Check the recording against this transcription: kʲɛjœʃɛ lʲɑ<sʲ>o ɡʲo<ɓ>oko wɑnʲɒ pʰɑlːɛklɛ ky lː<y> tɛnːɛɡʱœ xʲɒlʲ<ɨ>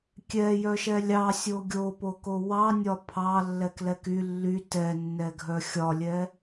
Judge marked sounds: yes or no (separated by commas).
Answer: yes, no, yes, no